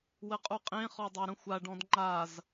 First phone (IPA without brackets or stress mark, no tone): w